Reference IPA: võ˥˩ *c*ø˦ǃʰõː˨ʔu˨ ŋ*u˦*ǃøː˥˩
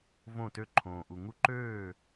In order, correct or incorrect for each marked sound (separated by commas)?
incorrect, correct